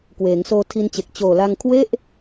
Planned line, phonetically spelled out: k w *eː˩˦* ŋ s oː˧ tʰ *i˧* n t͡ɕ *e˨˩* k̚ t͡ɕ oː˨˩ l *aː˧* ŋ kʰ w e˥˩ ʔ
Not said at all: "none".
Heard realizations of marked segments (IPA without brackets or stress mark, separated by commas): eː˩˦, i˧, e˨˩, a˧